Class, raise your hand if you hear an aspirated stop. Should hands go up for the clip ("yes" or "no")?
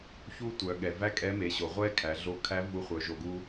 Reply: yes